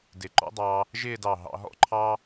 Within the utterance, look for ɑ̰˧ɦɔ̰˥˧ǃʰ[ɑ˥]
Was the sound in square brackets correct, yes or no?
yes